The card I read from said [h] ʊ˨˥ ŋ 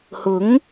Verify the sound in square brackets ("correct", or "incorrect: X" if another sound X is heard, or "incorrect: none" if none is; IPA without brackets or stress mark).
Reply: correct